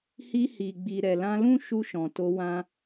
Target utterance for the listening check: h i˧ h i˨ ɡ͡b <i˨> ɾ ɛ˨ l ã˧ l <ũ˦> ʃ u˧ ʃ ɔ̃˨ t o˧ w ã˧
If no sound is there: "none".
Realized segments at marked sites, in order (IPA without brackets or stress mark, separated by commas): i˨, ũ˦